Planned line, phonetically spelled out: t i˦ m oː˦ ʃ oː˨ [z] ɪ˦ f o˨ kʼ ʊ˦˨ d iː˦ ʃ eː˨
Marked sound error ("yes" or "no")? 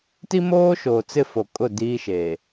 yes